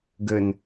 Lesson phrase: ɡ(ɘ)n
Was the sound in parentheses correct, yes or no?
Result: yes